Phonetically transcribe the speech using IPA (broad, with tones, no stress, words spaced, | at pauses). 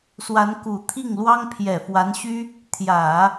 swa˧˥nku˨˩t̪ʰi˥˩ŋlwɑ˥ŋ pʰjɛ˨˩fwa˧˥nɕy˥ | t̪ʰjä˨˩˦